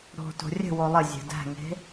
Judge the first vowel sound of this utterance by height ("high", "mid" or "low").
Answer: mid